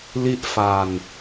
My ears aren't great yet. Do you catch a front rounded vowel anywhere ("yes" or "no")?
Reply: no